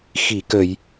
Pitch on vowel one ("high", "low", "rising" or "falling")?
low